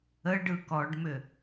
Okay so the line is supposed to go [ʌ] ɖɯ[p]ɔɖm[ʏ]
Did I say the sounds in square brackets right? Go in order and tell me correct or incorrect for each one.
incorrect, incorrect, correct

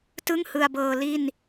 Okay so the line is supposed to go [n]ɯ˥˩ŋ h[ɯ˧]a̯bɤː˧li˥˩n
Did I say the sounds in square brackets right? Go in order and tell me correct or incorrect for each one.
incorrect, correct

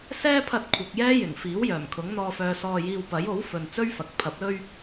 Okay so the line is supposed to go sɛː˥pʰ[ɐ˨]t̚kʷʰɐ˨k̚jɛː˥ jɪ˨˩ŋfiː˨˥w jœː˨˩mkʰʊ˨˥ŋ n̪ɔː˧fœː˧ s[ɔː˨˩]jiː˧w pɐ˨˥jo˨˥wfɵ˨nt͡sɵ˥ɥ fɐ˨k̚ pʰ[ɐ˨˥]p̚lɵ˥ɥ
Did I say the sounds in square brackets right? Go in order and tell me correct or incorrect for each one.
incorrect, incorrect, correct

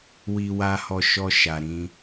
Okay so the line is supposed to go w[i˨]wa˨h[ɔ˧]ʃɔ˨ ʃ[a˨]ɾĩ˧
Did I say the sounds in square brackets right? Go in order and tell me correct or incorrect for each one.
correct, incorrect, correct

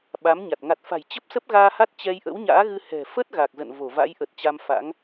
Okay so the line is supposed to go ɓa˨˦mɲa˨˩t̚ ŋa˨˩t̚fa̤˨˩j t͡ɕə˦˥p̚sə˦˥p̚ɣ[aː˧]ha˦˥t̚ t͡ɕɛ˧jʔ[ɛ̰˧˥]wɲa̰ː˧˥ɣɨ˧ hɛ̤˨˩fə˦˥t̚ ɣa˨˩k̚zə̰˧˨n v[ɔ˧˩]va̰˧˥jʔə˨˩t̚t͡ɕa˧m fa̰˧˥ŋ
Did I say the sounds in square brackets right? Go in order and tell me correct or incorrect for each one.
correct, incorrect, incorrect

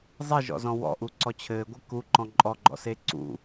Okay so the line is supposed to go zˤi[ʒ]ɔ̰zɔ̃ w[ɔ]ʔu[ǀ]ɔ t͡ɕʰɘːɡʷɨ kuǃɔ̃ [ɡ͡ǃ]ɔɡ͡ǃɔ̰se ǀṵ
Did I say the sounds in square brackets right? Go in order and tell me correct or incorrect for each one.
correct, incorrect, correct, incorrect

